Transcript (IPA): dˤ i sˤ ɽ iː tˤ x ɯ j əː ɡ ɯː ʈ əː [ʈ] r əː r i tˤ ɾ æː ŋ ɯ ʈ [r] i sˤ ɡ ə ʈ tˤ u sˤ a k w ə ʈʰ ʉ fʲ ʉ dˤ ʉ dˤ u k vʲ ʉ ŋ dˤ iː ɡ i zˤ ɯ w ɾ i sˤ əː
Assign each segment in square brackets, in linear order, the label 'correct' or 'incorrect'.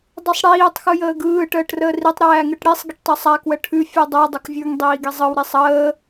correct, incorrect: ɽ

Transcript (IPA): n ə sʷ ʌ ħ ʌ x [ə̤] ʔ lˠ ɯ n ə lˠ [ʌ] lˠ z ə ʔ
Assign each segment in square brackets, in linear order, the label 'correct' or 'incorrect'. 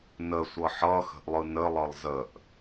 correct, correct

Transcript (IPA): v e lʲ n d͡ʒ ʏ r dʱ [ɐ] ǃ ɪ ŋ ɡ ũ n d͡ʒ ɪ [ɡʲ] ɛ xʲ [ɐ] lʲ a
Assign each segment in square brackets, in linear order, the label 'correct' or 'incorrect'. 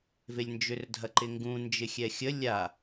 correct, incorrect: xʲ, incorrect: ə

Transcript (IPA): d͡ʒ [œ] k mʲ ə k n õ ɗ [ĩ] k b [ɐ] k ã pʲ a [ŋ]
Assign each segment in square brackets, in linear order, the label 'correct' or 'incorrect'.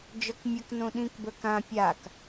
correct, correct, incorrect: ə˞, incorrect: k

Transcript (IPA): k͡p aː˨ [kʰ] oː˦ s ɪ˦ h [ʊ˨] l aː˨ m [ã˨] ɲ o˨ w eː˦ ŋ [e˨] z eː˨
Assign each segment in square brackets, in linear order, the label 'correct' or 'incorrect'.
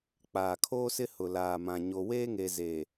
correct, correct, correct, correct

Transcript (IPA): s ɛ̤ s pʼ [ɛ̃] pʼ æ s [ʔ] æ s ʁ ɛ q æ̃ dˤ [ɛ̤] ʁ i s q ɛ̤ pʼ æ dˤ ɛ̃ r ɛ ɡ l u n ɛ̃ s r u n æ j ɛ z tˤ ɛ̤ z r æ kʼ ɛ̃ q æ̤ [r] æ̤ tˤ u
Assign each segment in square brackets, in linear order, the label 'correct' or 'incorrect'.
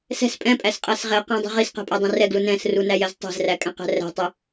correct, incorrect: qʼ, correct, correct

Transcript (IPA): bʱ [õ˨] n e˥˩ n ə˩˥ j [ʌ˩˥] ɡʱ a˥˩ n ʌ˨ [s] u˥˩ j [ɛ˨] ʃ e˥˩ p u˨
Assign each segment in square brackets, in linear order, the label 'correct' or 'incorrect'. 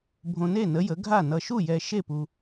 correct, incorrect: ə˩˥, incorrect: ʃ, correct

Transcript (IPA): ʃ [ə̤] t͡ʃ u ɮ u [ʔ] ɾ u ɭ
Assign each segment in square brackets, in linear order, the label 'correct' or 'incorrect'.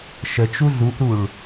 incorrect: ə, correct

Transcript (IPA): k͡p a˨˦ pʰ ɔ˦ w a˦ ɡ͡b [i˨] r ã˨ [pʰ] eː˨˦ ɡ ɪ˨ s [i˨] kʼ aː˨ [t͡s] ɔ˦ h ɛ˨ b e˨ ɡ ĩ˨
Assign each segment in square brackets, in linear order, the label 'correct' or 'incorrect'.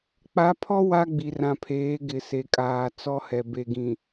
correct, correct, incorrect: e˨, correct

